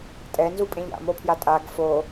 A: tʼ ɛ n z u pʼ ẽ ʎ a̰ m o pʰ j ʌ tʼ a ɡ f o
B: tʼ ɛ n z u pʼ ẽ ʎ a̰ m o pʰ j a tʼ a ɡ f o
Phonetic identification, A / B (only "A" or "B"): B